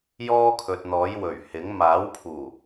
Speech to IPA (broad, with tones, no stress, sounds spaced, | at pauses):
j ɔː˥ kʰ ɵ˨ t̚ n̪ ɔː˨˥ j w ɵ˨˩ ɥ h ɪ˨˥ ŋ m aː˨˥ w pʰ uː˨˩